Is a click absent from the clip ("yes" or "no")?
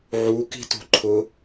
no